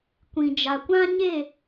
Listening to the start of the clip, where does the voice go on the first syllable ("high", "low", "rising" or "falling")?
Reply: low